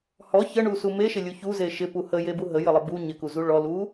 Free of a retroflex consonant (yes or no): no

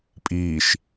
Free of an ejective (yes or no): no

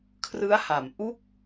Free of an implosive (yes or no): yes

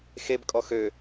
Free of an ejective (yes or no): no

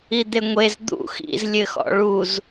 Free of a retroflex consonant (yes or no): no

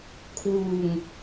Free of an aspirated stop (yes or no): no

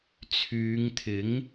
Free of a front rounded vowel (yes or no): no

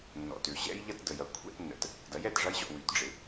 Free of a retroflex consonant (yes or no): no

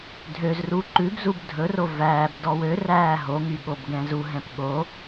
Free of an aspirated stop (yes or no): yes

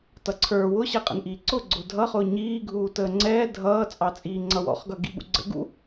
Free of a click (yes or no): no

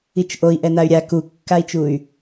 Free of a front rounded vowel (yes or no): no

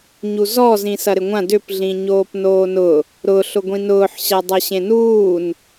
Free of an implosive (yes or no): yes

